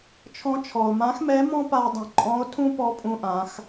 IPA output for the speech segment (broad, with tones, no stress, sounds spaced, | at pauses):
t͡ʃʰ ɔ̃˧ t͡ʃʰ ɔ˩ o̯ m ã˧˥ x m ɛ˧˥ m ɔ̃˥ p a˧ o̯ dˤ ə̃˩ ǃʼ ɔ̃˧˥ o̯ tʰ ũ˥ p ɔ˧˥ pʼ ũ˧ ʔ ã˩˧ x